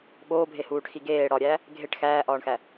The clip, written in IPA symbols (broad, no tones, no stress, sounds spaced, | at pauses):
ɓ oː bʱ e h uː ʈ x i ɡ eː ɽ ɒ ɾʲ æ | ɡʱ e ʈ x æː ʔ ɒː ɳ x æ